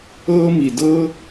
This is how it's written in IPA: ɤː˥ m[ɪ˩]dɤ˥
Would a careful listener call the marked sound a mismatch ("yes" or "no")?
yes